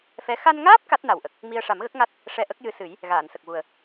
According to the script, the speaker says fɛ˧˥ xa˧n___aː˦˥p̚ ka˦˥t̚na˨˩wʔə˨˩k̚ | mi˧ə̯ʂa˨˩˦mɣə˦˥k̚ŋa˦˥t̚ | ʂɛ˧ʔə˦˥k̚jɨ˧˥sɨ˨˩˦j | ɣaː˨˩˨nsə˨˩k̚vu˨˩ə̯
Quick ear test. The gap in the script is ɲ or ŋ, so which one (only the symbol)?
ŋ